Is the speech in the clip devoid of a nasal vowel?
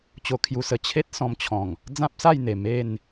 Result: no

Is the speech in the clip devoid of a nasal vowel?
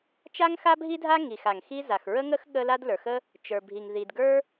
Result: yes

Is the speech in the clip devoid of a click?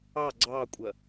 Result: no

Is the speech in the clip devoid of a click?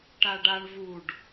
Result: yes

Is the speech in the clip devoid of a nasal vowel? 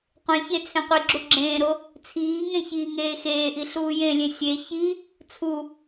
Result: no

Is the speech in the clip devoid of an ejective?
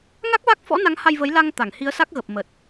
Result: yes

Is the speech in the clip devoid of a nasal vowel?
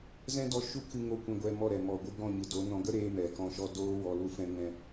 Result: no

